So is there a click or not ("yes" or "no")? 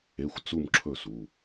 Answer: yes